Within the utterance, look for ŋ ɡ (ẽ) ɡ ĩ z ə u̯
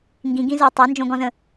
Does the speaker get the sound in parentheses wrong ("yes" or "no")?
yes